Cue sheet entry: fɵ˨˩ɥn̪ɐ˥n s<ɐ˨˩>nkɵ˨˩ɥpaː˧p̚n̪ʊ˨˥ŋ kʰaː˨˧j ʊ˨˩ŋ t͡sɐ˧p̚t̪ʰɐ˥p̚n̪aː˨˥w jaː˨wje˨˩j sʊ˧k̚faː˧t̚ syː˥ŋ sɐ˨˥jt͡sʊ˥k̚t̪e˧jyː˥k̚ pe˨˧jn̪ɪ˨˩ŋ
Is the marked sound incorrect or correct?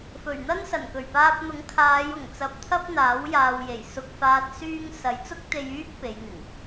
correct